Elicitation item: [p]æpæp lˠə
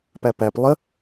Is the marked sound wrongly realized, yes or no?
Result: no